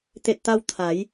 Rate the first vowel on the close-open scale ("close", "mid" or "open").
mid